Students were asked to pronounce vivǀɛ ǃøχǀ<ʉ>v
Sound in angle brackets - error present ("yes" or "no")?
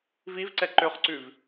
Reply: no